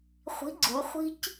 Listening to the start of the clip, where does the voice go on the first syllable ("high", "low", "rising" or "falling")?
rising